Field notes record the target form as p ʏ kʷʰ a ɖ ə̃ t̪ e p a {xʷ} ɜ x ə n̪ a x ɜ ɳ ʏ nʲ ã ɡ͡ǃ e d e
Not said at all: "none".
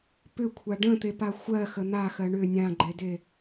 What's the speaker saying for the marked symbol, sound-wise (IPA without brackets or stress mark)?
xʷ